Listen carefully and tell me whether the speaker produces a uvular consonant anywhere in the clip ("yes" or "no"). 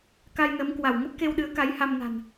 no